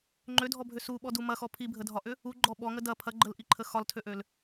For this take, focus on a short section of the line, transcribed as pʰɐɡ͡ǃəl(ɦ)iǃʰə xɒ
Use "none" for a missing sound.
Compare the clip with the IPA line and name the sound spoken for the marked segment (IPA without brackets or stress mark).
ʔ